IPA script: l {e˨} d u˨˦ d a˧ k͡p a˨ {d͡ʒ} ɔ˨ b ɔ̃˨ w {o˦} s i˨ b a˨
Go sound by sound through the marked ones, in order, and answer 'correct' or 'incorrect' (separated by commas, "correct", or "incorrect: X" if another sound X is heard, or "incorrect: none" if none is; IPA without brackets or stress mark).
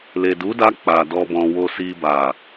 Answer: correct, incorrect: d, incorrect: o˨